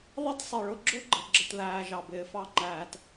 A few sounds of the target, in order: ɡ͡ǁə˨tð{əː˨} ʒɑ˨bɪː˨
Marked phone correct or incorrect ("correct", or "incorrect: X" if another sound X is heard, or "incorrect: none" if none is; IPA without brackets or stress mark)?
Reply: incorrect: æː˨